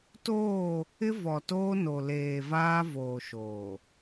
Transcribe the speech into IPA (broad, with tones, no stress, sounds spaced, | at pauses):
t oː˦˨ | ɪ˦ v ɔ˨ t oː˦ n o˨ l eː˨ v aː˦ v oː˨ ʃ oː˨